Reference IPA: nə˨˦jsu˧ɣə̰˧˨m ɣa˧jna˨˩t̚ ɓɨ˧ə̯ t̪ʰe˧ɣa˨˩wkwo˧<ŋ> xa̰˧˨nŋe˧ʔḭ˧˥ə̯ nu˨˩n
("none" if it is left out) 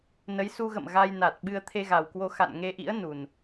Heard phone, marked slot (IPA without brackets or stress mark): none